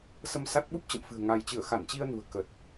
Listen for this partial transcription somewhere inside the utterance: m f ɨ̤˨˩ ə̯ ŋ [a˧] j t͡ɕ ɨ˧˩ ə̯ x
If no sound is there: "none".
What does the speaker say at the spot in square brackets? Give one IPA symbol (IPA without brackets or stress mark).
a˧